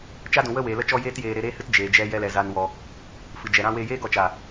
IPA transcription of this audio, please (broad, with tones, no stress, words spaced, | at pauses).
t͡ʃa˦dũ˨wə˦ weː˨lə˦t͡ʃɔ˦ jeː˦tjeː˧ ɾe˧ɾeː˦hɨ˦t d͡ʒeː˨d͡ʒɛ˧ jɛ˧lɛ˨za˨nwɔ˨ | fɨ˨d͡ʒɛ˨ɾã˦ weː˧jeː˦ɡɔ˧t͡ʃa˨